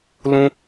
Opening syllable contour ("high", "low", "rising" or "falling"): high